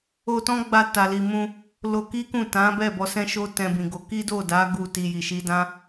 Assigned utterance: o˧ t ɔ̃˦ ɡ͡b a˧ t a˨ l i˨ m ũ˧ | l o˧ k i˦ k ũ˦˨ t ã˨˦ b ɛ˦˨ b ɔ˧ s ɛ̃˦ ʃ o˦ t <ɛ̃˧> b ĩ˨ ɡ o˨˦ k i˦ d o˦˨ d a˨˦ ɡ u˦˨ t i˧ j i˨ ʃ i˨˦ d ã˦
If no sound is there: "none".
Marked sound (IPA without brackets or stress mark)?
ɛ̃˧